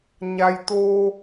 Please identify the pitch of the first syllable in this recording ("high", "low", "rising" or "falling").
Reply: low